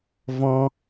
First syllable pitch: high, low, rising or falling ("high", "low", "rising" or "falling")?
high